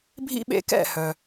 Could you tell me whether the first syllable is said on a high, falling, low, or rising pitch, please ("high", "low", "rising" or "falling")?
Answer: high